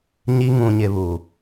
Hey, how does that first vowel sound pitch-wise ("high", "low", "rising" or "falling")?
high